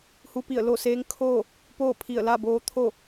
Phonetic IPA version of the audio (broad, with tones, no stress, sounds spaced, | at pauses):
h u˧˥ p i˧˩ ə̯ l o˥˨ s eː˧˥ ŋ kʰ oː˥˨ | p oː˥˨ pʰ i˧˩ ə̯ l a˥˨ b oː˧ t̪ʰ o˥˨